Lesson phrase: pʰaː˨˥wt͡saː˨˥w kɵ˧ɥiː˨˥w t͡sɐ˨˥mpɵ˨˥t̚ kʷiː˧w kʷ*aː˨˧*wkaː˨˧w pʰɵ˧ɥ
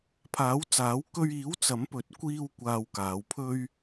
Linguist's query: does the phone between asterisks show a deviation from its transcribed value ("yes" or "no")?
yes